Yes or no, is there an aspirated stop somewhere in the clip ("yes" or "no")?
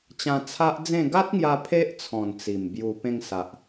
yes